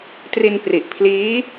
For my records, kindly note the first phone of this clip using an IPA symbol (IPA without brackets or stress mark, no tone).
t